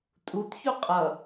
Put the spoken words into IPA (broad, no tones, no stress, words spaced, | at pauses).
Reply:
tʼutçu qʼʌ